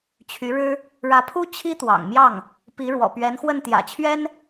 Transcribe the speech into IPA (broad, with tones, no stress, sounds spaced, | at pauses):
t͡ɕʰ y˧˥ ɻ ɻ̩˥ | ɻ ä˧˥ pʰ u˥ t͡ɕʰ i˥ t̪ w ɑ̰˨˩ ŋ m j ɑ˥˩ ŋ | p i˧˥ ɻ w ɔ̰˨˩ p ɥ ɛ˧˥ n x w ə˥˩ n t̪ j ä̰˨˩ t͡ɕʰ ɥ ɛ˥ n